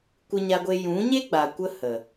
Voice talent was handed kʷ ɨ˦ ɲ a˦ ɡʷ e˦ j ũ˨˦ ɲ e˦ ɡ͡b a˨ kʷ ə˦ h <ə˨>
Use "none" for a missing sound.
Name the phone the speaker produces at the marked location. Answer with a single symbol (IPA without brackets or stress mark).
ə˨